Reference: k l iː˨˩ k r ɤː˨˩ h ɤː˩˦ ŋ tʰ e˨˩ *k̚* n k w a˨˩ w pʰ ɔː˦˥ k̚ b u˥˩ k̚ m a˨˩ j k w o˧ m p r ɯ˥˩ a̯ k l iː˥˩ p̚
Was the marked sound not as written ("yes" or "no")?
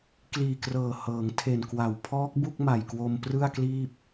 yes